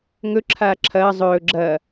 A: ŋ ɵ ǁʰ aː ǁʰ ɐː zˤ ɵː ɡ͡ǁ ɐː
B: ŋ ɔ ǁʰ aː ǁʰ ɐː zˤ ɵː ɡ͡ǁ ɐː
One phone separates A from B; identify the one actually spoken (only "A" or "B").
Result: A